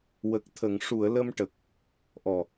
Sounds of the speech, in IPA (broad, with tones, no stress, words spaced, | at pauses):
wə˨˩k̚t̪ʰə˨˩˨ŋ ʂu˨˩˨ə̯ lə˧mʈə˨˩k̚ | ʔɔ˨˩